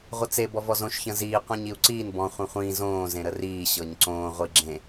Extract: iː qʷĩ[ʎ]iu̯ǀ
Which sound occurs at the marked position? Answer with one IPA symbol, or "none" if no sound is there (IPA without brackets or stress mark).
ɲ